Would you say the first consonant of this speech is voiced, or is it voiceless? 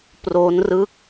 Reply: voiceless